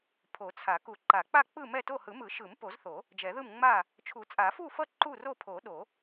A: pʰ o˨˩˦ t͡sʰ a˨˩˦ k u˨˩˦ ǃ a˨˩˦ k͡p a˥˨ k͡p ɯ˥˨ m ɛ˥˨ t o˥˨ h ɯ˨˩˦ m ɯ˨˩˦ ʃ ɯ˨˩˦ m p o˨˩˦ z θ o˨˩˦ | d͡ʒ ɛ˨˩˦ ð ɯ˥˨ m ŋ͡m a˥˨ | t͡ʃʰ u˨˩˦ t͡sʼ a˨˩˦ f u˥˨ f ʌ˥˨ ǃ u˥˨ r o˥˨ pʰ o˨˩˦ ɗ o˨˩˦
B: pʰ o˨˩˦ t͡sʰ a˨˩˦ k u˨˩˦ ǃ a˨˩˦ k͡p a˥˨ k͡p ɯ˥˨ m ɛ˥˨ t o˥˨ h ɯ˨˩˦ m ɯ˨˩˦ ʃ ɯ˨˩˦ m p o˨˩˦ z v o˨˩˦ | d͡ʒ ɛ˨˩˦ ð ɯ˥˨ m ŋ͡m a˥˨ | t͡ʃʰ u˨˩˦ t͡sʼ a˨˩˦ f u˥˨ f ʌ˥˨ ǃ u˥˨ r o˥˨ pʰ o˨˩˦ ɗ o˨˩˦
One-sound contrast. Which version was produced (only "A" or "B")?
A